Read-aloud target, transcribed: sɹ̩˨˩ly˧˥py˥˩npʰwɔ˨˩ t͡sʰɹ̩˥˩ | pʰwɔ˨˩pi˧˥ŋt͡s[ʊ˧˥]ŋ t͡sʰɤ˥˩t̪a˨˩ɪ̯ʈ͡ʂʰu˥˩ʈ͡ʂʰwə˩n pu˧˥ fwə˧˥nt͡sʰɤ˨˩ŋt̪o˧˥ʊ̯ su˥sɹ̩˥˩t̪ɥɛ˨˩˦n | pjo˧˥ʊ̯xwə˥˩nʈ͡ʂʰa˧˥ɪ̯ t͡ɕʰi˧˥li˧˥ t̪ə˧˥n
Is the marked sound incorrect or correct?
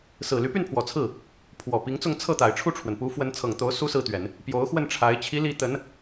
incorrect